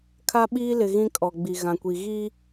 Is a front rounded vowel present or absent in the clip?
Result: absent